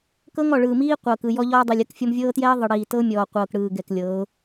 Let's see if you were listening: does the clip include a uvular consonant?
yes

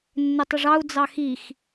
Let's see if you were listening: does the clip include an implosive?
no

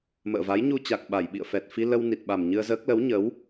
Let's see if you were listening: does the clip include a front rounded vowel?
no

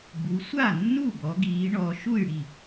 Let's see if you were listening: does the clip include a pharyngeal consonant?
no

